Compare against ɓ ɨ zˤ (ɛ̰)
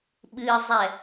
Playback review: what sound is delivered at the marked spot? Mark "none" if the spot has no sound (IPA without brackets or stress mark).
ɛ